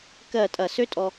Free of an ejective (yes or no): no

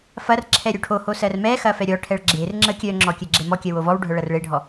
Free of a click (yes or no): no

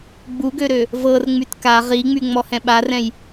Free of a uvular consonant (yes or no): no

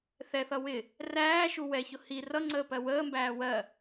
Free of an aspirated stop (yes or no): yes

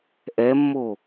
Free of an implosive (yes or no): yes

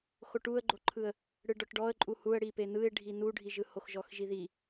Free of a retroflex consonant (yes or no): no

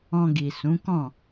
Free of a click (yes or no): yes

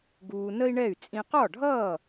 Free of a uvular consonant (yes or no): no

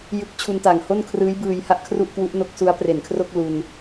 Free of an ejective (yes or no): yes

